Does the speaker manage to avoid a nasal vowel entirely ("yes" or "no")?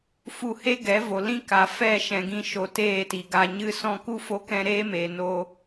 no